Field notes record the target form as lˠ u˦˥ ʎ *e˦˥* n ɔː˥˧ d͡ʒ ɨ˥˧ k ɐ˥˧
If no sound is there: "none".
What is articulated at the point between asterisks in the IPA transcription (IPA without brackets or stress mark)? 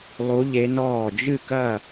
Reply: e˦˥